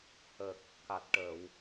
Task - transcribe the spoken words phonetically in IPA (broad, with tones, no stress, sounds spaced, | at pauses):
h ə˨˩ k̚ | k a˨˩ t̚ ʈ ə˨˩˨ w